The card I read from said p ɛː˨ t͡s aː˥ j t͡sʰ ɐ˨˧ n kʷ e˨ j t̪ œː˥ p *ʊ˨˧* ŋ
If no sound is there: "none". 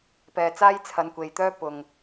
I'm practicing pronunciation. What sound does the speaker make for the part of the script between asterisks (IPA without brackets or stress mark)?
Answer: ʊ˨